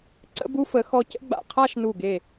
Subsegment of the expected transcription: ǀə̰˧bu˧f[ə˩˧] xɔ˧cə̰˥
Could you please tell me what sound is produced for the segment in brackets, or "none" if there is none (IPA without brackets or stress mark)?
ə˩˧